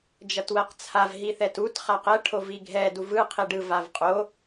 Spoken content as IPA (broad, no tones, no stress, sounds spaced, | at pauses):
d͡ʒ ʌ t w ɛ q t͡sʰ a v ɦ i θ ɛ t u t χ a q ɛ ʈʰ o v i ɡʱ ɛ d u v ɯ qʰ i ɖ ɯ v a v qʼ o